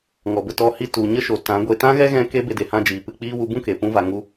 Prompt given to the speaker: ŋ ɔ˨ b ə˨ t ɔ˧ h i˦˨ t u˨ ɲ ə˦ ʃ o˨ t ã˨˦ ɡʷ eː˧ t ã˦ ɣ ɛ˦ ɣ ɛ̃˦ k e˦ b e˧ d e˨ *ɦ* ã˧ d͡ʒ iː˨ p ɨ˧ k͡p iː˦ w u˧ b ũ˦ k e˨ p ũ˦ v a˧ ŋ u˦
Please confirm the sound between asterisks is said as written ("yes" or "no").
no